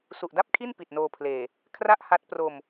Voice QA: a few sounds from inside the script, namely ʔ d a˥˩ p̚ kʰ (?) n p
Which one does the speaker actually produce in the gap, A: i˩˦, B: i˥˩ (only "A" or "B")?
B